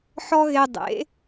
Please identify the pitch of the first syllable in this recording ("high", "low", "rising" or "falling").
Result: high